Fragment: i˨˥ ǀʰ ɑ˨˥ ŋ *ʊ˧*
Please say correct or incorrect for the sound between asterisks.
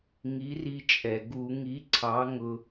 correct